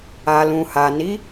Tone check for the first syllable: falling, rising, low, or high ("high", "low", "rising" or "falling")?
low